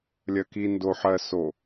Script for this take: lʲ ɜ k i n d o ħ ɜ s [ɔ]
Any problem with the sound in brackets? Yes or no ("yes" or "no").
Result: yes